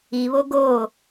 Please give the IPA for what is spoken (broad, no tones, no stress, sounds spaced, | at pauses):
i β o ɡ o